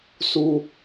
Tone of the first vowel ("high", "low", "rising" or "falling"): high